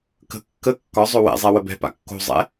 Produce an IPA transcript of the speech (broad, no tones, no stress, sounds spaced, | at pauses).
k ə̤ kː ə kː ɒ zˤ ɵ w ɛ̰ zˤ ɛ w ə b ɛ̤ p a̰ kː o̤ zˤ ɛ̰